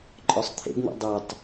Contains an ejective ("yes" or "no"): yes